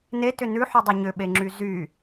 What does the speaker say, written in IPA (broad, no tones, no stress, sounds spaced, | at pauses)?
n e t ʏ n ʉ ħ ʉ dˤ ʉ ɲ ʏ ɓ e ŋ͡ǁ y z y